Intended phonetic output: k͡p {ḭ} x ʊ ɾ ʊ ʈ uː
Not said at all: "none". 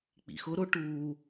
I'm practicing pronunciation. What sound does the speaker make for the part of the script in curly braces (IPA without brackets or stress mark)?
ḭ